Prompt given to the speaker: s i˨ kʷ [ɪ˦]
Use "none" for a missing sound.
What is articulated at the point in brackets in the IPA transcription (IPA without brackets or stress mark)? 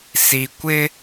ɪ˦